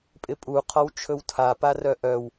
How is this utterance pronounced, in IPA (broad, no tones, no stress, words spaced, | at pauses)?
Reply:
pʼɪpʼu qʰɔwt͡ʃʰɵwtʰa parœʔœw